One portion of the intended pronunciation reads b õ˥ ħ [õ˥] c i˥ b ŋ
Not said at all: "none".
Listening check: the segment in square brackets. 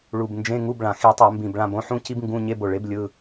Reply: ũ˥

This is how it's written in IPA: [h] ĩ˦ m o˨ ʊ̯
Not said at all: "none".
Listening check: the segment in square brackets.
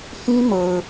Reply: h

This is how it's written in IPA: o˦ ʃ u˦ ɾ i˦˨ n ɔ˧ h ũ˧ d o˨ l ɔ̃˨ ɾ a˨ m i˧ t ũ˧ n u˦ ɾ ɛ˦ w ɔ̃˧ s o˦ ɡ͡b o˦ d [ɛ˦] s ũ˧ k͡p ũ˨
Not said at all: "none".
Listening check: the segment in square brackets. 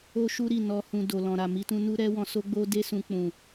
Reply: e˦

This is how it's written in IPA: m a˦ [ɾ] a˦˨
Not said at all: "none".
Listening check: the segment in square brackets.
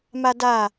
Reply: d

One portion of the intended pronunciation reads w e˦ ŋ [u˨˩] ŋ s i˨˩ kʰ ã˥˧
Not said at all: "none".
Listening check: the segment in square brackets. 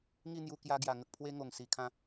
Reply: o˨˩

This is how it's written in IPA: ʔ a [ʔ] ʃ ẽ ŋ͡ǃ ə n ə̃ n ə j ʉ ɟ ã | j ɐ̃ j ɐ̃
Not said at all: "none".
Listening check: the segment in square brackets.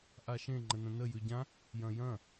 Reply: none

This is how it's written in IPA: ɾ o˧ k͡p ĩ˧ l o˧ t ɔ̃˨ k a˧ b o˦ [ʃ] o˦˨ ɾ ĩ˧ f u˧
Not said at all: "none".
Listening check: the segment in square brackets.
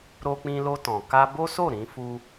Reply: s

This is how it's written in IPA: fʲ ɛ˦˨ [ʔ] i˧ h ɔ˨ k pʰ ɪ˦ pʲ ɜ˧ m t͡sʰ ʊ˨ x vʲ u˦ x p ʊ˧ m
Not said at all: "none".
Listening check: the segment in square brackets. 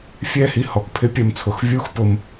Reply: h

